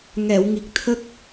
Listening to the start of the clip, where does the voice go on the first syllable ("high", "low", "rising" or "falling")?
low